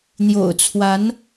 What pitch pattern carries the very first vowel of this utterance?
low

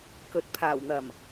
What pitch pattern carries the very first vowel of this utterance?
rising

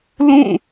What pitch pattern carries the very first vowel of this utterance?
falling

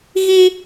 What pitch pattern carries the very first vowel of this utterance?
high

